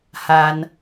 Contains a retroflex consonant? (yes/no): no